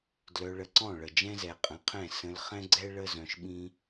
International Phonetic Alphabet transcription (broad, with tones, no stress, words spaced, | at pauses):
dlœ˧ɭə˧ǀɔ̃˦˨ ɭə˨ d͡ʒɛ̃˦zɛ˨qʼə̃˨˦qʰɛ̃˦˨ sə̃˧l χɛ̃˦ɡ͡ǀɛ˦ ɭə˦ zœ̃˧ʃɓĩ˦